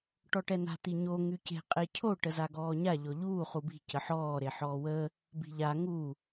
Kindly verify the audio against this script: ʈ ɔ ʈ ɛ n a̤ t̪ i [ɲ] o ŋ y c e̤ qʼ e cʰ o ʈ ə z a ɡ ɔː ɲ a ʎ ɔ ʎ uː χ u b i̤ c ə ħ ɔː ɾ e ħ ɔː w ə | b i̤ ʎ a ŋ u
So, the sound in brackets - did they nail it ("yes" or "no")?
yes